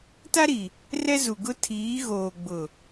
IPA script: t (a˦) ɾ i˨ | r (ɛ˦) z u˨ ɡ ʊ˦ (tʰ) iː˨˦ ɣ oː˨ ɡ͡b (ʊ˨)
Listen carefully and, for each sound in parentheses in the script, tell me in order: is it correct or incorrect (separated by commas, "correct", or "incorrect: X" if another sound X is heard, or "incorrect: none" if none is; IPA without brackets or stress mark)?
correct, correct, correct, correct